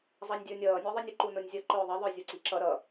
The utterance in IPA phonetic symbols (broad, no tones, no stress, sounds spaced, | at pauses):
zˤ ɑ nʲ dʲ ə˞ nʲ ʌː nʲ ə˞ ðˤ i nʲ ə ǃ u n ʊ nʲ zʲ ʌ ǃ ʊː ðˤ ə ðˤ ə˞ zʲ u ǀ i ǁ ʌ ɾ ʌ